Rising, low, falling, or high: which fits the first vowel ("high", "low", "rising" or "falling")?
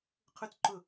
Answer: high